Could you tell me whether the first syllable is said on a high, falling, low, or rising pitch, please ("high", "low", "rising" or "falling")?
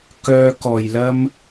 high